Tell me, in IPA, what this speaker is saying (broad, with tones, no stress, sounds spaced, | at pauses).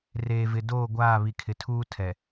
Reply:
r eː˨ v ɪ˨ d oː˦˨ ɡʷ aː˦˨ β i˨ kʰ ɪ˨ tʰ uː˦ tʰ ɛ˨